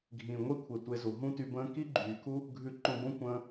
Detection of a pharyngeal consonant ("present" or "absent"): absent